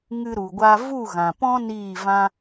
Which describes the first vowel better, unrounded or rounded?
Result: unrounded